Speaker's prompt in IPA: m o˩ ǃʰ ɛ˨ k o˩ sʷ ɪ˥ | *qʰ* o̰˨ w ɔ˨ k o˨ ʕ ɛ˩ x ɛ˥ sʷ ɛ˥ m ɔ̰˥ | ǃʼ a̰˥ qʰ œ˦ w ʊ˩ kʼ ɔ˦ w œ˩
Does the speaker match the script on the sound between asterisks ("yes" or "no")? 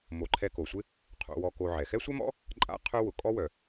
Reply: yes